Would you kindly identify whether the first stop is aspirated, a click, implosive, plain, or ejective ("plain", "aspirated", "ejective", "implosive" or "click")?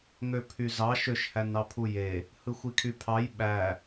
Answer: aspirated